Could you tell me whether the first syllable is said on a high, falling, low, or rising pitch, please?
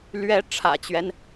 rising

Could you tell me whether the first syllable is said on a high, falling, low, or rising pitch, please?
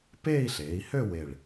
falling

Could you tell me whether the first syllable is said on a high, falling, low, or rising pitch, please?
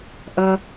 low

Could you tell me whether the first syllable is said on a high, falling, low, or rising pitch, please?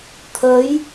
rising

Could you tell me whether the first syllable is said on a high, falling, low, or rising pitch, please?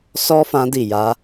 high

